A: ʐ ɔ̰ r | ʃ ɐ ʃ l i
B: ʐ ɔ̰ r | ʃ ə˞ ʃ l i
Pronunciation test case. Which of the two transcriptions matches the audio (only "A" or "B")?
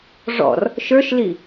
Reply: B